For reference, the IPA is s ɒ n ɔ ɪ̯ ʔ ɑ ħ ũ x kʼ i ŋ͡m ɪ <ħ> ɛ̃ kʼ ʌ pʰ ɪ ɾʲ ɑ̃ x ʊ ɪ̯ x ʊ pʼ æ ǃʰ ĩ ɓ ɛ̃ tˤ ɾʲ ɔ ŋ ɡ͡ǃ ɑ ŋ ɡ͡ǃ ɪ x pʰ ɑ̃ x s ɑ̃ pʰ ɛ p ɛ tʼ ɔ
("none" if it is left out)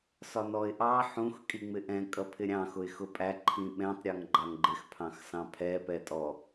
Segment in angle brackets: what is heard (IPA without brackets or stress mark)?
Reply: ʔ